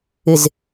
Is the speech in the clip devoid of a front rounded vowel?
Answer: yes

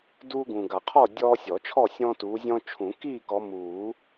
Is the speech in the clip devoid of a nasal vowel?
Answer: no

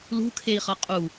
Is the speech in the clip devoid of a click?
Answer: yes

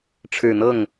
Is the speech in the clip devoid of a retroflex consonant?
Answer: no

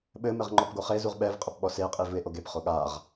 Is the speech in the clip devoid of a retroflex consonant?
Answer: yes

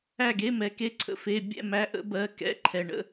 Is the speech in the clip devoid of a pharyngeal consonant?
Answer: yes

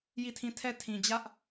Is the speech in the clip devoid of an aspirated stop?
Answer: no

